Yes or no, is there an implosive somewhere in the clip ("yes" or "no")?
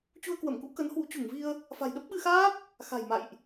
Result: yes